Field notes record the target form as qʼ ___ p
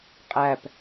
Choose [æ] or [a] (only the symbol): æ